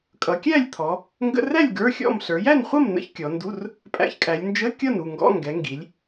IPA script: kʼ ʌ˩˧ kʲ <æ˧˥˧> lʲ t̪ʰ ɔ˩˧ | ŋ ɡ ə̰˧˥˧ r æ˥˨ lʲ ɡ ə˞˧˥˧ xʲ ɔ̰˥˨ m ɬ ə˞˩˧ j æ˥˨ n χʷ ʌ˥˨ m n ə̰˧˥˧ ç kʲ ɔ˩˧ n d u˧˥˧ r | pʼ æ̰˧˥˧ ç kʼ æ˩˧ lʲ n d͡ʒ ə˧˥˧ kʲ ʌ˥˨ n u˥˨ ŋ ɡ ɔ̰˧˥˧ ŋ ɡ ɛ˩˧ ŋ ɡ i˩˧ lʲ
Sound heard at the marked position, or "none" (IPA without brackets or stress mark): æ˥˨